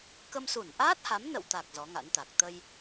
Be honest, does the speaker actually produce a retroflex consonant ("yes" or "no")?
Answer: no